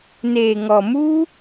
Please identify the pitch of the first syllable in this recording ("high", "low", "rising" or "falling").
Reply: low